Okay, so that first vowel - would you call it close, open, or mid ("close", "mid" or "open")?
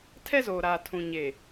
mid